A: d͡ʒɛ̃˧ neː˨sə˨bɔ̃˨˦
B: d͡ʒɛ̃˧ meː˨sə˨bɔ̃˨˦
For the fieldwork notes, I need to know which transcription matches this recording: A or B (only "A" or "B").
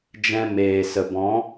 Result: B